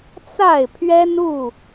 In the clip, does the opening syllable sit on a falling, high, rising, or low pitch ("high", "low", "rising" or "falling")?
falling